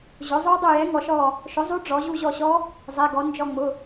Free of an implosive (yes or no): yes